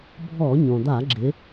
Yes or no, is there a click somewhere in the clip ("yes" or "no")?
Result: yes